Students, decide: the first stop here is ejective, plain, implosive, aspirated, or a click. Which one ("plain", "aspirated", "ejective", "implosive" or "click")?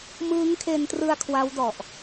aspirated